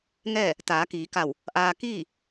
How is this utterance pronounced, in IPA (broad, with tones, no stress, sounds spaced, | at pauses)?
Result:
ŋ ɛː˥˨ | t̪ aː˩˧ k iː˩˧ k a˧˩ w | ʔ aː˧ k iː˥˨